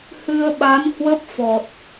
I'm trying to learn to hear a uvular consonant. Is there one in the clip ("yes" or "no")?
no